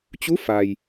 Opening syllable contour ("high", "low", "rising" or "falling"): rising